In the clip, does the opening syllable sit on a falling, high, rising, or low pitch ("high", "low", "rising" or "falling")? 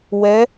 rising